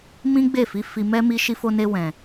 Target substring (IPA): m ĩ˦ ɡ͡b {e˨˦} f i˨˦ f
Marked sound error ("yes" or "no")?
yes